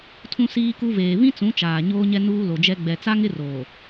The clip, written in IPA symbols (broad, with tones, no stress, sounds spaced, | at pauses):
tʰ ũ˦ s iː˦ k u˦ v eː˨ β ĩ˦ t͡s ũ˨˦ t͡ʃ aː˨ ɲ oː˦ ɲ ɛ˦ n uː˦ l o˨ d͡ʒ ɛ˦ ɡ͡b ɛ˨ t͡s a˦ ŋ ɪ˦ r oː˨